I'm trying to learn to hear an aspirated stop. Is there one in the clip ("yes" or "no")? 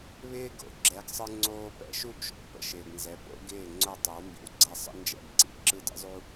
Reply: no